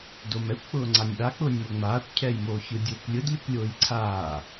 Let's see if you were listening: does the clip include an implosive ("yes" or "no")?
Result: yes